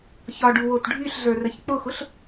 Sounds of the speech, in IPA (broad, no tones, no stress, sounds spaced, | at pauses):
ç ɒ ɖ u w o t ɖʱ y ɬ ɮ ə˞ r ə ç k͡p ʊ x ʊ ɬ